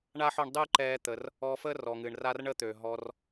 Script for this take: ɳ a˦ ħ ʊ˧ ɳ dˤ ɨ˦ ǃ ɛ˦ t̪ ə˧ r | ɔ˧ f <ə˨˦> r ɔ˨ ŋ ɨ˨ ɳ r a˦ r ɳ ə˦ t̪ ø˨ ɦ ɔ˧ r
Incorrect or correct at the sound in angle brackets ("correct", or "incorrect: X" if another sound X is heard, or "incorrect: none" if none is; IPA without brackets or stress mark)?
incorrect: ə˦